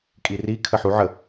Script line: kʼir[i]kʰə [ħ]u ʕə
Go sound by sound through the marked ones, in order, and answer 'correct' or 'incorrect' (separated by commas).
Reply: correct, correct